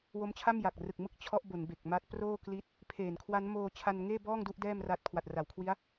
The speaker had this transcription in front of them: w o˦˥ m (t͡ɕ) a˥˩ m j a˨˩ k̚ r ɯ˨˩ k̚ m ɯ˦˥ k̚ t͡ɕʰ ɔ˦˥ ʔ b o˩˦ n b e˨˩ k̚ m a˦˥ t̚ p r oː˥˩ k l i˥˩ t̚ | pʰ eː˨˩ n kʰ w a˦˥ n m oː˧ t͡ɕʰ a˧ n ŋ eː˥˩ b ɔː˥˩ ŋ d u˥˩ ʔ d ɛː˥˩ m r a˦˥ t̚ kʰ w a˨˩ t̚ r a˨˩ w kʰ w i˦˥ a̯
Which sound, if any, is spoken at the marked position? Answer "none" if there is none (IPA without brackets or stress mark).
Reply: t͡ɕʰ